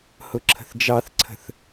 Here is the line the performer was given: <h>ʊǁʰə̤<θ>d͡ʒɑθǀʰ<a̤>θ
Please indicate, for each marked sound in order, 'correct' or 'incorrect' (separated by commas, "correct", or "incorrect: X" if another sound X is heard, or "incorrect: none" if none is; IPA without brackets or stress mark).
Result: correct, correct, incorrect: ə̤